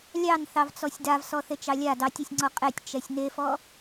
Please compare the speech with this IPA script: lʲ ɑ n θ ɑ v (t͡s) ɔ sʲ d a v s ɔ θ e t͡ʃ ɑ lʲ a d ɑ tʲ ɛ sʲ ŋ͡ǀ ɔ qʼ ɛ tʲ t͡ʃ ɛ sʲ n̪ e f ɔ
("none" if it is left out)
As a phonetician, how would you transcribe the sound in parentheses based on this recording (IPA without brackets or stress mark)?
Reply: t͡s